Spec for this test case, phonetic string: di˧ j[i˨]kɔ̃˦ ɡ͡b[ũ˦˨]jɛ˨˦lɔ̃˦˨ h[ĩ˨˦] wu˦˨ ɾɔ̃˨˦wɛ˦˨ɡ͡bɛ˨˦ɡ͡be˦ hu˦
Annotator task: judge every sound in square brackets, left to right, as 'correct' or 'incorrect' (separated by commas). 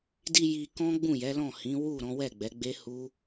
incorrect, correct, correct